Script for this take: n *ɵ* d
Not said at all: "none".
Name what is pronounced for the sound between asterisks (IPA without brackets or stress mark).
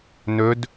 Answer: ɵ